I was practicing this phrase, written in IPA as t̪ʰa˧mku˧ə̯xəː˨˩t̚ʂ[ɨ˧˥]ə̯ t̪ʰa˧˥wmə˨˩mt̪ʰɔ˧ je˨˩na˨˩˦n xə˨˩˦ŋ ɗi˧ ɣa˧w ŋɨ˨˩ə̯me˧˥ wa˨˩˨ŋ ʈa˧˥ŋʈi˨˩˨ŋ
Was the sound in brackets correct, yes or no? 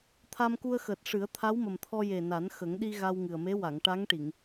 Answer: no